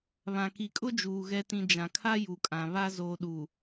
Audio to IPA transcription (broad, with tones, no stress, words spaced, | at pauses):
βã˨ki˨kʼʊ˦d͡ʒuː˨ ɣɛ˨tĩ˨ d͡ʒã˨kʰa˦ ju˨kʼã˨ βa˦ zoː˨ɗu˨